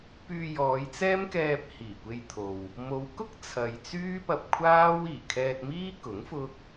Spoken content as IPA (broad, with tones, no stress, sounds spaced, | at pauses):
p yː˧ j ɔː˨˧ j t͡s ɛː˥ m k ɛː˧ p̚ h iː˨˩ kʷ e˧ j t̪ʰ o˨ w | m o˨˧ w k ʊ˥ k̚ t͡sʰ ɐ˨ j t͡s yː˥ p ɐ˧ p̚ kʷʰ aː˥ w iː˨˩ kʰ ɛː˧ t̚ m iː˥ k ʊ˨˥ ŋ f ʊ˥ k̚